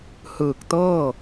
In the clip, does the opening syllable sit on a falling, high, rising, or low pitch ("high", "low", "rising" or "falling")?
low